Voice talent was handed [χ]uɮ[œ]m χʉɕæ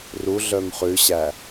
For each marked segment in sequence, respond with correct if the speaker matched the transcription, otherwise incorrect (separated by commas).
incorrect, correct